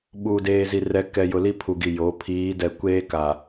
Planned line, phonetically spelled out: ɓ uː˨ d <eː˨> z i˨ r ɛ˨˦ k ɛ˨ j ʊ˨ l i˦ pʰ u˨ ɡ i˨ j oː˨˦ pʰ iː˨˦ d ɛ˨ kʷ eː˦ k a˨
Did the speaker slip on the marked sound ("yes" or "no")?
no